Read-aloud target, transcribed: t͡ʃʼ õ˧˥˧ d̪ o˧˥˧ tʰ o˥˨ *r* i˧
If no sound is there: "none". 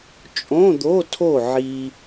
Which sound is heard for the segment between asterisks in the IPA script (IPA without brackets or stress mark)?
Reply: ʕ